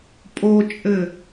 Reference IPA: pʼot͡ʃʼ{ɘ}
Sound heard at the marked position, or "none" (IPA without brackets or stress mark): ɘ